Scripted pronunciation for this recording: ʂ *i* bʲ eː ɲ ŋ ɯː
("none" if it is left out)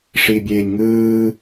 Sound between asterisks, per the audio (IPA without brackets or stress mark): i